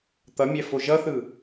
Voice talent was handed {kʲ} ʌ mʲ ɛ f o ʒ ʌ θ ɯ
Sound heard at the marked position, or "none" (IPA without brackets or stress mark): t̪